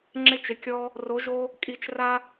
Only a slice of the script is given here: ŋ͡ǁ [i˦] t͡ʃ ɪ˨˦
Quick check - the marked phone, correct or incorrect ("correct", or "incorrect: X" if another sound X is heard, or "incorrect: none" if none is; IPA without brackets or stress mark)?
incorrect: ɪ˦